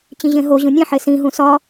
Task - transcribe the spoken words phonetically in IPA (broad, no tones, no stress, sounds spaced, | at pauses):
t͡ɕ ĩ ʑ ẽ ɦ o ʑ ũ nʲ ẽ ħ e s ĩ ɦ ũ s ɒ